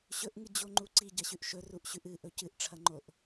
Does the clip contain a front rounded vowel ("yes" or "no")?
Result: no